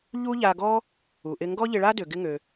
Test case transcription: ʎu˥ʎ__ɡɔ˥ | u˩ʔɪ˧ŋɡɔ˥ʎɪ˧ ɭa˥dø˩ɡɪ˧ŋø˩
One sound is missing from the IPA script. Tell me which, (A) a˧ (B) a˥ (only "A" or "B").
A